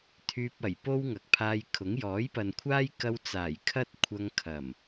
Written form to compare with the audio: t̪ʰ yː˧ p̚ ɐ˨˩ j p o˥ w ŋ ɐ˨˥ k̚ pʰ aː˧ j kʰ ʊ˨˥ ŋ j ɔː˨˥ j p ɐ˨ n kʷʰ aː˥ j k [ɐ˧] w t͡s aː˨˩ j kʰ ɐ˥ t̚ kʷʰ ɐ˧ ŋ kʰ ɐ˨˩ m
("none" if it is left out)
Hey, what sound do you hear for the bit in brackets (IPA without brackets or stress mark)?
ɐ˧